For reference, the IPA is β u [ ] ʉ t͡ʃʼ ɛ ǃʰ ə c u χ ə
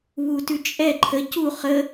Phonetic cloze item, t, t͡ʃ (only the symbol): t